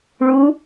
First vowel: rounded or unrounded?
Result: rounded